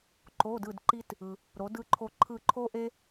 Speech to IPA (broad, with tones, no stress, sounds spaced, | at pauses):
ǃ o˧˥˧ d ɯ˦˨ d ǃ i˥ t | ɯ˨ | ɾ o˨˦ d ɯ˦˨ ǃʰ o˦˨ ǃʰ ɯ˦˨ ǃʰ o˥ ʔ e˥